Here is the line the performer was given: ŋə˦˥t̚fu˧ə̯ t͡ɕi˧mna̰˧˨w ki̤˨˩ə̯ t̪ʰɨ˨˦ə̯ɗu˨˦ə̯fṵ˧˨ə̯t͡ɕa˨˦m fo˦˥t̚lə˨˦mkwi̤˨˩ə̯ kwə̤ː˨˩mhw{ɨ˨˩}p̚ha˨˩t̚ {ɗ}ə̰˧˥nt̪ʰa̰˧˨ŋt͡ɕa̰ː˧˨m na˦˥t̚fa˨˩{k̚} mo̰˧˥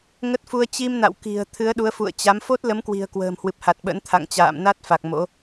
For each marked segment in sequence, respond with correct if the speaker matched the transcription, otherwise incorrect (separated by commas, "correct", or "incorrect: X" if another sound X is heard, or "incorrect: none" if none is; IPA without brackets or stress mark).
correct, incorrect: ɓ, correct